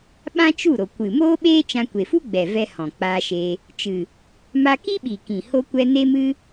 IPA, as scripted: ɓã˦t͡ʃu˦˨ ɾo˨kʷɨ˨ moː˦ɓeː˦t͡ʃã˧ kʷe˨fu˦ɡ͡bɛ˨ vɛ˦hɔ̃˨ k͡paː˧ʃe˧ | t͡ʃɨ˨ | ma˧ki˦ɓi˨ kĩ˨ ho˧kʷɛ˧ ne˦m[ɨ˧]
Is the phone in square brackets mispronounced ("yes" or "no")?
yes